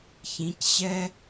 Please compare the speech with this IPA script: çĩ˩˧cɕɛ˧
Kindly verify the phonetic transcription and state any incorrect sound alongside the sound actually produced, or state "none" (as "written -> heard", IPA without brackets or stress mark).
none